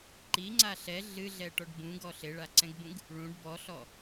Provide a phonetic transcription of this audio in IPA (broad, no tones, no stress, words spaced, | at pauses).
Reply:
ǃiŋ͡ǀa ɬɛ ɮɨɮɛʈɔɖ bũɡɔ ɬeɭaǀɛ̃ɡbũɡ | ɭũɖ bɔɬɔ